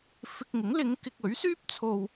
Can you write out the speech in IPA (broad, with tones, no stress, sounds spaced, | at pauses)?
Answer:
f ɪ˧ k̚ ŋ ɪ˨˥ ŋ l ɪ˨˧ ŋ k ɪ˧ k̚ ɵ˨˥ ɥ s yː˥ p̚ t͡sʰ o˧ w